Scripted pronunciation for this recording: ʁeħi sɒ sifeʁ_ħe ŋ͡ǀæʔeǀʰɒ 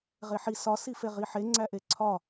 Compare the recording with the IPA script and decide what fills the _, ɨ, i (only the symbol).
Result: i